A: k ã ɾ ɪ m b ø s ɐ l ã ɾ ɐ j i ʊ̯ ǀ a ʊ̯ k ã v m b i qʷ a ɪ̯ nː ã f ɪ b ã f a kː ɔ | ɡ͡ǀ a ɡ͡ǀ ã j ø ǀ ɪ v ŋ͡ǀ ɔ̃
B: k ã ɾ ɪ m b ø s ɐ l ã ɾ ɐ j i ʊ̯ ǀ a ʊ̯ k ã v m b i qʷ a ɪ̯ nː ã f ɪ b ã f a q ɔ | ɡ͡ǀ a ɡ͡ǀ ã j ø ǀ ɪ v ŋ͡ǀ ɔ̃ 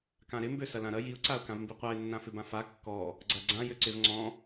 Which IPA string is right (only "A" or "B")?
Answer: A